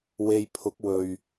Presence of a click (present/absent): absent